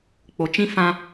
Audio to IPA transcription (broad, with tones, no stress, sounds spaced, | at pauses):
k͡p o˨ t͡ʃ ĩ˦ f ã˦